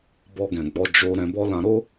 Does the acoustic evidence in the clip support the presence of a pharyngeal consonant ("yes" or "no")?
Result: no